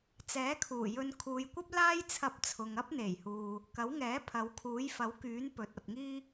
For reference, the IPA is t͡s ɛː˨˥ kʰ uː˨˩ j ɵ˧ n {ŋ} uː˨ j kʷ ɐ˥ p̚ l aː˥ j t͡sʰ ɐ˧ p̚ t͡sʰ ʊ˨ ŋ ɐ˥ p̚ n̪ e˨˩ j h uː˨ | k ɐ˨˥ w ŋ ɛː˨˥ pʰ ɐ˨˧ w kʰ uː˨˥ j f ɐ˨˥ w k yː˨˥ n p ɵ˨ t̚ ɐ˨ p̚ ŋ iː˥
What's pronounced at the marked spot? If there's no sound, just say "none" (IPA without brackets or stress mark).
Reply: kʰ